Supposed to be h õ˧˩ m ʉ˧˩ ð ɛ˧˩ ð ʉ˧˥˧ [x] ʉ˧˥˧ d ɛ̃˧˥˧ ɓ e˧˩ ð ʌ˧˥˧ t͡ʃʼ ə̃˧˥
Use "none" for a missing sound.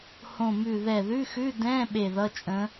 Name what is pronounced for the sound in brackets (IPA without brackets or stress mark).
x